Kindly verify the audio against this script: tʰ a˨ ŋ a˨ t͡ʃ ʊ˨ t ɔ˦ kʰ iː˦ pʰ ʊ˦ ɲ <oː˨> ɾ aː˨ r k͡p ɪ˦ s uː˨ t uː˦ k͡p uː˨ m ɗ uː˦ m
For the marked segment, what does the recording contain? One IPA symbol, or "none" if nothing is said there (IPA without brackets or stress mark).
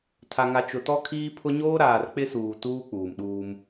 oː˦